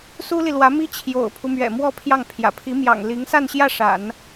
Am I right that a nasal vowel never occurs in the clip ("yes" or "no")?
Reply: yes